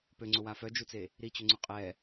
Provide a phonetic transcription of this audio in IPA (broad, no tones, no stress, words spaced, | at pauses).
pøŋ͡ǀʊwa fœd͡ʒut͡se | ɾit͡ɕʏŋ͡ǀʊ qʼɛ